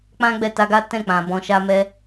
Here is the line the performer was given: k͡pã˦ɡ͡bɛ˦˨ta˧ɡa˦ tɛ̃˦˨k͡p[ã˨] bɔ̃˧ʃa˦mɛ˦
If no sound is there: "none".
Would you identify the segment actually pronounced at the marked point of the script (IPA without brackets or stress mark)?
ã˨